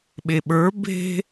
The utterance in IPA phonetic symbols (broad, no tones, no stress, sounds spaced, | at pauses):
ɓ e ɓ ə˞ b e̤